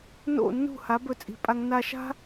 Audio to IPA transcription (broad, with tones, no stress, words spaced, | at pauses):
no̰˦˨nːṳ˦˨ha˨˦b ɵ˧t͡sʼi̤˧pʼa˦ŋ na˧ʃa̤˦